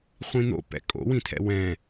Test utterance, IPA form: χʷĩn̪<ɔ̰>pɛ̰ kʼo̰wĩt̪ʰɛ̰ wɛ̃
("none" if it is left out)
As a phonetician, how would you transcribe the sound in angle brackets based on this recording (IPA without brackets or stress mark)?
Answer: o̰